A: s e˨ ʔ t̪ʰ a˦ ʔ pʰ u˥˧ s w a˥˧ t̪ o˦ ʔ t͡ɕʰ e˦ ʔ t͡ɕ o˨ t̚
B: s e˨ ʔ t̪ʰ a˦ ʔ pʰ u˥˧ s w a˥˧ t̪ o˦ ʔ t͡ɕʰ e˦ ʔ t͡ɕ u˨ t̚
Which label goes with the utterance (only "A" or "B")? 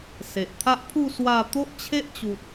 B